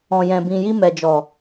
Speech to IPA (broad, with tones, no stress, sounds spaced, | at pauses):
ɔ̃˨ j ɛ̃˨ b ĩ˨ j i˧ m ɛ˨ d͡ʒ ɔ˨